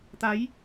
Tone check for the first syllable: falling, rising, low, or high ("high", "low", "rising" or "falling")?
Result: rising